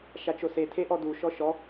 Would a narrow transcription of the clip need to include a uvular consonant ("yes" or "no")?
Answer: no